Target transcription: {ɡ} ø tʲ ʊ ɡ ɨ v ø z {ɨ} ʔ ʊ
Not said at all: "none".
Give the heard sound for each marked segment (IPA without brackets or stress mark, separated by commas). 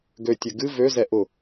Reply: ɡ, ɛ